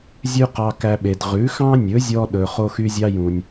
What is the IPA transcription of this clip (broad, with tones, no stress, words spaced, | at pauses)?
zʲʉ˥qɑ˧ kæ˧ɓe˩d ʁʉ˩˥xɑ̃˥nʲɵ˩˥zʲɔ˧ ɗɵ˩ χo˥xy˥zʲɑ˥jũ˩nʲ